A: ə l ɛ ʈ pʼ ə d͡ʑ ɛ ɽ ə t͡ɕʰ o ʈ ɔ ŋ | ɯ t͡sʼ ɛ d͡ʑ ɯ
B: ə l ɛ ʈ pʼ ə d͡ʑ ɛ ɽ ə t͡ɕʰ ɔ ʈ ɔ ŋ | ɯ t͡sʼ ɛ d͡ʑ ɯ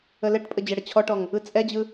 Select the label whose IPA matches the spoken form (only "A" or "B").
B